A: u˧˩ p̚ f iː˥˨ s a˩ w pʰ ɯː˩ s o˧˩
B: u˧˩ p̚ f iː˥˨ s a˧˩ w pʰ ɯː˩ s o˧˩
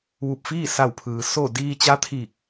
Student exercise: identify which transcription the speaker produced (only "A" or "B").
B